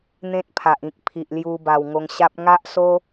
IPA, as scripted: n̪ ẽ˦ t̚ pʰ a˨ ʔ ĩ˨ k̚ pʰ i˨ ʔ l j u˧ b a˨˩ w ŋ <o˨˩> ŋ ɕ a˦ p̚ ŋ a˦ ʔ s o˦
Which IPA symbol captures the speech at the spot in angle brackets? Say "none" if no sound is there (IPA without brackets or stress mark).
o˧